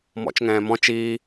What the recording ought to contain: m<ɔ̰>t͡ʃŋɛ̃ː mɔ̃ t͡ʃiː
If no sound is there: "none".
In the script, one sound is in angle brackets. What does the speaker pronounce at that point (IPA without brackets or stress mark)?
ɔ̰